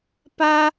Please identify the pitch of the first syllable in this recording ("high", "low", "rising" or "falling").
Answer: high